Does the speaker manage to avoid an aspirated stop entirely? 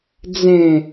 yes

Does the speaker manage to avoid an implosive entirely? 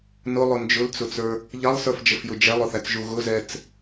yes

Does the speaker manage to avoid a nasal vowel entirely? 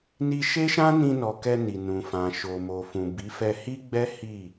no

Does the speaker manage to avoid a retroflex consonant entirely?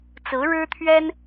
no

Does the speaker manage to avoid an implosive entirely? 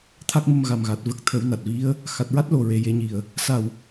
yes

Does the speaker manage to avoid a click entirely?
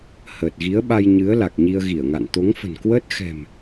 yes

